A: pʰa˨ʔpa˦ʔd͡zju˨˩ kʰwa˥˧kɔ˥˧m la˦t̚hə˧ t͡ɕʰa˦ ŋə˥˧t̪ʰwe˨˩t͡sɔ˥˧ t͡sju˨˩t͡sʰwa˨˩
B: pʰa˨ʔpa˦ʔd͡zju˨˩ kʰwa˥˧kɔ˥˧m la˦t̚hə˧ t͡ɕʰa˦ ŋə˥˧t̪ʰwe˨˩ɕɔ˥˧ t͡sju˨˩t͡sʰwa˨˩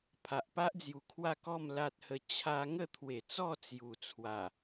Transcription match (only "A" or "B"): A